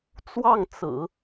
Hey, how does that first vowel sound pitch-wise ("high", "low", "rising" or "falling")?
falling